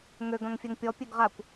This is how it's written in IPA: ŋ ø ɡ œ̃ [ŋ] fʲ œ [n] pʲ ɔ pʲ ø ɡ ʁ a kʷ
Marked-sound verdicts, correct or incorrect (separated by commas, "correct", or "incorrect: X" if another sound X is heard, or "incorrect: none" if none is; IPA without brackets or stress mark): correct, incorrect: ŋ